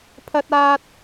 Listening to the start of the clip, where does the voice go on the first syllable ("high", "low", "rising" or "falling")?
high